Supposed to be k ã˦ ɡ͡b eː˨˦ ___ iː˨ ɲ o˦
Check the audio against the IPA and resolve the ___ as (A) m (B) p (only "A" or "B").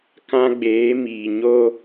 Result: A